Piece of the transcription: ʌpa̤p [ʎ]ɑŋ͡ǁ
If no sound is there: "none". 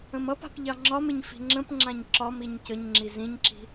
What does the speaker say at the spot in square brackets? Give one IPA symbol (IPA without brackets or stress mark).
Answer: ʎ